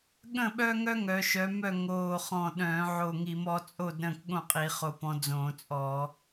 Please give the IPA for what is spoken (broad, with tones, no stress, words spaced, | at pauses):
ɠə̃˥˨ɓœ˦ŋœ˦ ŋœ˨˦ ʃœ˨˦mœ˥˨ ŋoː˧˩χɔ̃˧˩ ɗœ̃ː˧˩˧ʕo˧˩ŋi˧˩˧mɔ˨˦ t͡sʼo˥˨d ɾə̃ː˥˨kɠõ˥˨qʼi˧˩˧ χo˧˩pɔ̃˨˦ d͡zõː˧˩˧t͡sʼɔ˧˩˧